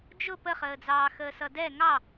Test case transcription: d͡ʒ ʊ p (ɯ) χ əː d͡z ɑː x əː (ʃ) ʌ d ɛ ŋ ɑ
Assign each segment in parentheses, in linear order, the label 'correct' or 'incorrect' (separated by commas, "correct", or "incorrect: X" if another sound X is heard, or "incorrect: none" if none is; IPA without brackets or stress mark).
incorrect: ə, incorrect: s